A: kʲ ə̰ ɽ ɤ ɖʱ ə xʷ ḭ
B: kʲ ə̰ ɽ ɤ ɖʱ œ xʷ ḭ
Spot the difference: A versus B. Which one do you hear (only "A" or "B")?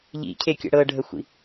A